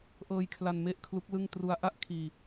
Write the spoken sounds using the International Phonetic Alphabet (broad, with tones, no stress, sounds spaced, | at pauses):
ʔ ɤː˧ j kʰ l a˧ n m e˥˩ ʔ kʰ l u˦˥ k̚ l ɯ˥˩ ŋ t r u˦˥ a̯ ʔ a˥˩ ʔ kʰ iː˧